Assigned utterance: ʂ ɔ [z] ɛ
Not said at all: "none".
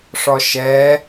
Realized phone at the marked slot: ʃ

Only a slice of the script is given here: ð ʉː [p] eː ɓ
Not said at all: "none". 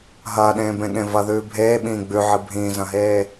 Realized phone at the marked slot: bʱ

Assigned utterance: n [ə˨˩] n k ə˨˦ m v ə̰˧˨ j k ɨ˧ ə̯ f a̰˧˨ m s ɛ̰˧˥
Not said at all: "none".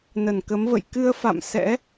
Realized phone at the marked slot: ə˧˩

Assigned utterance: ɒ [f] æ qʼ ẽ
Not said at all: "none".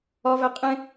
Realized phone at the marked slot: v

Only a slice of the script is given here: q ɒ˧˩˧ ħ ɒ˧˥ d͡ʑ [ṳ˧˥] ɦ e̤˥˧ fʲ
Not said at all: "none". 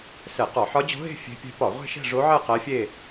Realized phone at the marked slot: o̤˧˥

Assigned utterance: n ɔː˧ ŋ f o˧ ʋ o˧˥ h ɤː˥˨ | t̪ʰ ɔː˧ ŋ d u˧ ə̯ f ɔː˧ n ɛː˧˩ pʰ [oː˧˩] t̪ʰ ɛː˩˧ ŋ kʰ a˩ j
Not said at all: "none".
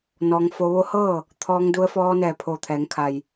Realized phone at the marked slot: oː˧˩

